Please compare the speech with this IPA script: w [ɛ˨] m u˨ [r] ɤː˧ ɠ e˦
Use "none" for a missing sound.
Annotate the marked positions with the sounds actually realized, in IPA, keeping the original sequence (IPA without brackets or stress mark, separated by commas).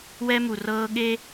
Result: ɛ˦, r